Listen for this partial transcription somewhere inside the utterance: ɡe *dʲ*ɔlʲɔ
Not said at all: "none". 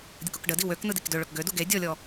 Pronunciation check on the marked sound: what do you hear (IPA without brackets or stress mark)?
dʲ